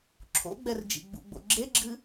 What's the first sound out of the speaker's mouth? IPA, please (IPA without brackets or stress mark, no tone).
ǁʰ